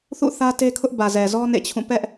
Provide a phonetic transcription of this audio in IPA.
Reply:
θṵ˦˨θä˦te˦kʰʊ˦ʔ bä˨zɛ˨zɔ˦ nḛ˦˨t͡ɕʰũ˦˨ pɛ˦ʔ

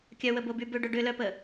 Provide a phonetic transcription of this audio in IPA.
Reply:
kʲœwəboby bʏɖʊ ɖʏlœpə

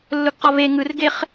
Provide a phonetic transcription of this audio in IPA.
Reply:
lːʊɡqɒve ŋɯrɡeχ

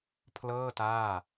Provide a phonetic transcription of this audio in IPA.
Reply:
pʰlɤː˥˩ taː˥˩

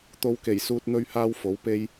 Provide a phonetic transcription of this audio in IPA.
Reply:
t̪o˧wke˨˩jsuː˧t̚ n̪ɵ˥ɥhaː˥wfo˨˥wpe˥j

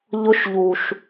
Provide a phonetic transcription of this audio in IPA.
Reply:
ʎʊ˧ʃ ʎu˨ʃ

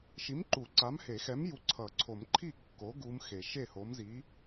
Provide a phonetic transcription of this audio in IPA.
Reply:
ʃi˨˥mǃu˨˩˦ ǀa˨˥mhe˨˩˦xɛ˨˥mju˨˥ ǀʰʌ˨˩˦ǀʰo˨˩˦m ǃʰi˥˩kːo˨˥ ɡu˦˥mxe˨˩˦ ʃe˥˩ho˨˥mzi˨˥

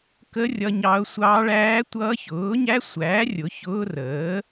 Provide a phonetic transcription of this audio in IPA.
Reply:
kə˦˥ rʲʌ˦˥ɲɑ˦˥ʊ̯ sʷɑː˦˥ɭæː˦˥tʷʌː˦˥ çʊː˨˥ɲæ˦˥sʷæː˨˥ rʲʊ˨˥çʊː˦˥rəː˨˥

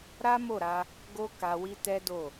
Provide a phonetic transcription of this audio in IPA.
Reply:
ɾa˦mo˦˨ɾa˧ | ɡo˦ka˧ wi˦tɛ˦do˦˨

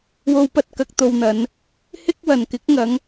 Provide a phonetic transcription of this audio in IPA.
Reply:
wo˧wpɐ˧t̚ kɐ˧k̚t̪o˧wn̪ɐ˨˧n | hɪ˥k̚wɐ˨n kɪ˨˥k̚ŋɐ˨˧ŋ

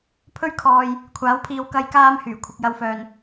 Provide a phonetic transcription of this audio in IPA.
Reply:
pʰɵ˧ɥkʰɔː˨j | kʷʰaː˨˥wpʰiː˧w kɐ˥jkaː˥m hyː˨˩kʷʰɪ˨k̚jɐ˧wfœː˨n

